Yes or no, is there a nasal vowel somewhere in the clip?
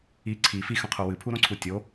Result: yes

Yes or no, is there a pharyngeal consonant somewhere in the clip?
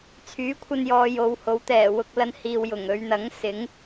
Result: no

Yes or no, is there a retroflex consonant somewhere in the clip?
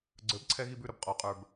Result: no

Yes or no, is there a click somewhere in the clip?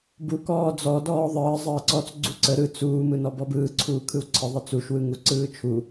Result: yes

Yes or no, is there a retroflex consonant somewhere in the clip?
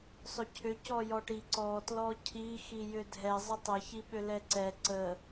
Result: yes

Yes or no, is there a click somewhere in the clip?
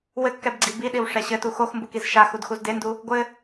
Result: yes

